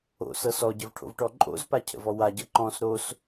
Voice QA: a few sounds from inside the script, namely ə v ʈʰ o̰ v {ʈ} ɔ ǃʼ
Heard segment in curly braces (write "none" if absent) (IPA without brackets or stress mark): ʈ